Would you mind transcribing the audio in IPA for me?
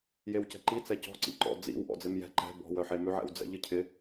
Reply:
j e w c ɛ̤ ǃ i t͡s ɛ c ɔ̤ ǀ ḭ ǃ ɔ̰ d͡z ḭ w ʔ ɔ̰ d͡z ɪ m j ɛ̤ ǃ ɛ̤ b ɔ̤ w œ ħ e m ʉ ʕ ɛ̰ w d͡z ɛ̰ ʎ ɨ cʰ ɪ

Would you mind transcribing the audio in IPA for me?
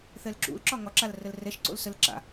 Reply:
θ ɛ l ǁ ṵ l ǁ ɒ ŋ ɒ ǁ a l r ə l r ɛ ʃ ǀ o̰ l s ə l ǁ a̰

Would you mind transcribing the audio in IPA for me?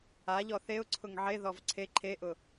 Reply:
a ʎ ɔ θ e ʊ̯ ǀʰ ʊ ŋ ʕ e ð ɔ v ǀʰ e ǃʰ e ʔ ʊ

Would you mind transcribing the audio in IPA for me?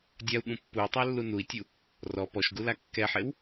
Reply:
dʲ a u̯ ɠ ũ pː u i̯ tˤ æ lː u n u i̯ tʲ u | r ɔ p ɔ ʃ ɡ u l a kː ɛ ħ e w

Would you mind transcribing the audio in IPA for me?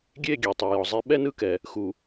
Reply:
ɡʲ e˦˨ ɡʲ e˨ tˤ ɤ˨ j ɔ˨ zˤ e˦ ɓ ɛ˦ n ɯ˦ k ɛ˨ | x u˨

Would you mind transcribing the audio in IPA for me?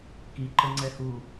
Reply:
k i ǃ ə ŋ͡ǀ ɛ h u

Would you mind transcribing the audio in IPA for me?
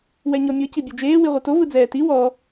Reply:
w ɛ ɲ ɔ mʲ ɤ c i bʲ o d͡ʒ eː w i ʁʷ ɯ t o v ɯ d͡z ɛː t i w ɔ

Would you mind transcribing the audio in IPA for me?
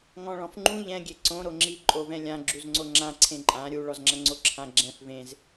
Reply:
ŋ ɔ̃ ɭ ɔ̃ f ŋ͡ǃ ũ ʎ ɛ̃ ɡʲ e ǀ õ ɾ o ŋ͡ǁ i ǃʼ o v ɛ̃ lʲ ã ɡ͡ǁ u z ŋ͡ǀ o ŋ͡ǁ ã ǀʰ ẽ ǃʼ ã ɾʲ u ɭ ɔ z ŋ͡ǁ ɐ ŋ͡ǀ o ǁʰ ã ɡ͡ǁ ɛ̃ f v ẽ z

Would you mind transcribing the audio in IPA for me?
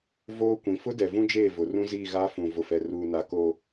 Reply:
v oː˦ kʷ ĩ˨ f ʊ˦ d ɛ˨ v ũ˦ d͡ʒ eː˦˨ v ʊ˨ r ũ˦ z iː˦˨ ɣ aː˦ f ũ˨ v ʊ˨ f ɛ˨ r uː˨ n a˨ k oː˨

